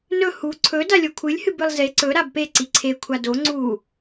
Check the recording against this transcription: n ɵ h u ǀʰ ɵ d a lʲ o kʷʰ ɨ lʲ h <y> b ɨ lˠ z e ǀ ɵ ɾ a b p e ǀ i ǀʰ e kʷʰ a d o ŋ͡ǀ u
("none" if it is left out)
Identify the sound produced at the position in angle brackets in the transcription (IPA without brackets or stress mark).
ɨ